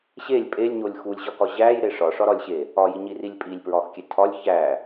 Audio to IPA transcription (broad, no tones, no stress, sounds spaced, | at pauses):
ɕ e lʲ pʼ e lʲ ɲ o lʲ x u lʲ ʑ ɒ k ɒ ʑ æ j ɾ e ʂ ɒ ʂ ɒ ɾ ɒ lʲ ɕ e | ɒ j i ɲ i r i lʲ pʼ i lʲ p ɹ ɒ x kʲ e tʰ ɒ lʲ ç æ